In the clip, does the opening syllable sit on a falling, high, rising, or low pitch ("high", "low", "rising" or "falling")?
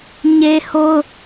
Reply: high